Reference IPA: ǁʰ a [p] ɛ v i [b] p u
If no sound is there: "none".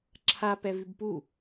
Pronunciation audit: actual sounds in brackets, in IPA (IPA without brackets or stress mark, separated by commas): p, b